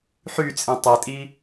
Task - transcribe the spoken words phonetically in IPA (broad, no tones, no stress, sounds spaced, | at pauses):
ħ y t͡sʼ ĩ tˤ e tʼ i